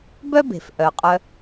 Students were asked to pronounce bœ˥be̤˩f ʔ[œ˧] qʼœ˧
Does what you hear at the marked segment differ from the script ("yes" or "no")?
yes